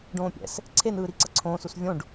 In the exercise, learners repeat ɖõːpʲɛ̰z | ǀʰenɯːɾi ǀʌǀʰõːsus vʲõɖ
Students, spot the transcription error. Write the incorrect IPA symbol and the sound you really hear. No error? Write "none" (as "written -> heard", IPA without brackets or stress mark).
z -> s